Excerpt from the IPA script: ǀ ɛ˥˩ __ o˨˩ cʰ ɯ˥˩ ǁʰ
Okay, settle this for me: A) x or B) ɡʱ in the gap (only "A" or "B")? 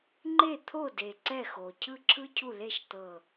A